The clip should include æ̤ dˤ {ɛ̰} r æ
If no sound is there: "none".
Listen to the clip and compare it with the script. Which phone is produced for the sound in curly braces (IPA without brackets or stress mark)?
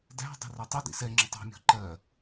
ɛ̤